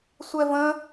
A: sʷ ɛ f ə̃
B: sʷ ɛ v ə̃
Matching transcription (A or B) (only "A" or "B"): B